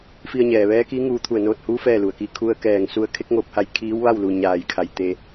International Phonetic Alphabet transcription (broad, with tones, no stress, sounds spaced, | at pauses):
f i˧ ə̯ ɲ ɛː˩ ʋ ɛː˧˥ k i˧˥ ŋ uː˧ t̪ʰ u˧˩ ə̯ n oː˧ t̚ h uː˧˥ f ɛː˥˨ l u˩ ə̯ k i˧˥ kʰ u˧ ə̯ k ɛː˧˩ ŋ s u˧ ə̯ kʰ e˧˥ k̚ ŋ oː˧ p̚ h a˧ j kʰ iː˧˥ w ʋ a˥˨ w l u˩ ɲ aː˩ j kʰ a˩ j t̪ e˧